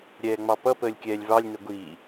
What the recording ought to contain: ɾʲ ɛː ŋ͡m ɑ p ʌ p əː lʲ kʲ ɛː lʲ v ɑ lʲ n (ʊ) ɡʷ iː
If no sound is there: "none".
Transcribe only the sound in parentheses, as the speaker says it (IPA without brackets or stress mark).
ʊ